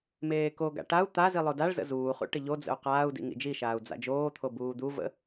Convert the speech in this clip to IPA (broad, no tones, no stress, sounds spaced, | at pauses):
m eː k o ɡ a̰ ʈ a u̯ t̪ a z i lˠ o d a ɭ z ə̰ z uː χ ṵ ʈ ɪ ʎ o d͡z ə̰ u̯ q aː u̯ d ḭ ŋ ḭ d͡ʒ i ʃ aː u̯ d͡z a̰ d͡ʒ oː t̪ʰ o b uː d̪ u v ə̰